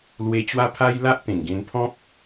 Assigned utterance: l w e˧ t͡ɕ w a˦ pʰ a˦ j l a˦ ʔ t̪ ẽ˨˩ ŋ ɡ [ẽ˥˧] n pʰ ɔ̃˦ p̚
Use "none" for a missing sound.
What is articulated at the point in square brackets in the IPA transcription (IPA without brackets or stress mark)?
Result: ẽ˧